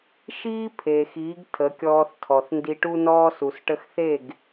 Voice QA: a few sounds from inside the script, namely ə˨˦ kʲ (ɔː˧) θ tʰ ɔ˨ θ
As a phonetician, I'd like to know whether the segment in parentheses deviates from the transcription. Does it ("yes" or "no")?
no